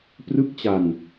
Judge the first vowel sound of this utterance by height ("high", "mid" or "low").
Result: high